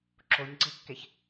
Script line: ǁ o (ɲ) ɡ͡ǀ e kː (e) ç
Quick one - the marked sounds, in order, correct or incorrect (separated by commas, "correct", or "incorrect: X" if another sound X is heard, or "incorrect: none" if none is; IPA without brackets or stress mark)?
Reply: correct, correct